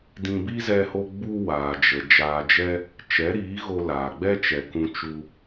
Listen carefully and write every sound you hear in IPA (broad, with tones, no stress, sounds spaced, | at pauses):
d ĩ˧ b i˦ z ɛ˧ h o˧ ɡ͡b u˧ w aː˨ d͡ʒ ə˨ d͡ʒ aː˨ d͡ʒ ɛ˧ | t͡ʃ ɛ˨˦ ɾ iː˨˦ ɣ o˧ l aː˨ ɡ͡b ɛ˦ t͡ʃ ɛ˨ k ũ˧ t͡ʃ u˧